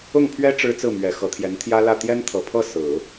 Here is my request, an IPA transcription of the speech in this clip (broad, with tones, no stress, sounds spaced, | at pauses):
ʊ˥˩ ŋ pʰ ɥ ɛ˥ ʈ͡ʂ ɻ̩˥ t͡s ɹ̩˥˩ m ɥ ɛ˨˩ x ɤ˧˥ t̪ʰ j ɛ˧˥ n t̪ʰ j ä˥ l ä˥˩ t̪ j ɛ˥ n t̪ʰ ɤ˨˩ pʰ ɤ˥˩ s ɹ̩˨˩˦